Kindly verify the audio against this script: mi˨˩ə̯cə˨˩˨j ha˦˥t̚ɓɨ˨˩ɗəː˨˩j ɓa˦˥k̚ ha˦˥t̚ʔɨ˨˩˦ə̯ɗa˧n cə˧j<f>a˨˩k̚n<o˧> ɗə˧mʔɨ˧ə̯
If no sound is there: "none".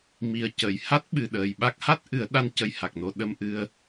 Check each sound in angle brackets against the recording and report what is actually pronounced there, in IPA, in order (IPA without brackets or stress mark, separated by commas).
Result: h, o˧